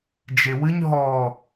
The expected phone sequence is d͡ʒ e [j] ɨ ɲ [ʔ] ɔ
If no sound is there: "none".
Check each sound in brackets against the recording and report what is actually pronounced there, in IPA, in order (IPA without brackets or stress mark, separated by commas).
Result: w, ɦ